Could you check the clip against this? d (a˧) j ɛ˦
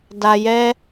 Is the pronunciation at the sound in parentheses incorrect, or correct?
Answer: correct